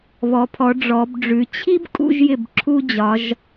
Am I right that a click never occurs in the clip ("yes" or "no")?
no